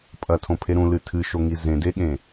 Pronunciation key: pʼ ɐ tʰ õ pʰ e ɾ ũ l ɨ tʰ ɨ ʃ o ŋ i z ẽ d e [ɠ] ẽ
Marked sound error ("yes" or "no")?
no